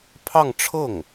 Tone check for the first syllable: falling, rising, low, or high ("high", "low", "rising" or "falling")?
falling